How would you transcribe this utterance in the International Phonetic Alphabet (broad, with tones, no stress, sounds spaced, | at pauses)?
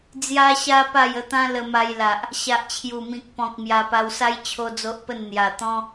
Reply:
d͡z j a˧ ɕ a˧ p a˥˧ j ə˥˧ t̪ ã˦ l ə˧ m a˧ j l a˨ ʔ | ɕ a˨ ʔ t͡ɕʰ j u˨˩ m ĩ˨ k̚ p ɔ̃˨ k̚ m j a˧ p a˧ w s a˦ j t͡ɕʰ o˦ d͡z o˦ ʔ p ə˥˧ n n̪ j a˨˩ t̪ ɔ̃˦